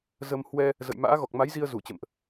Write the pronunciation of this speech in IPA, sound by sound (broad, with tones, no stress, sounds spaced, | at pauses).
z ə˧ m h w ɛ˧ | z ə̰˧˨ j m a̰ː˧˥ ɣ ɔ˨˩ k̚ m a˨˦ j z i˧ ə̯ z u˧˩ t͡ɕ ə̰˧˨ m ʔ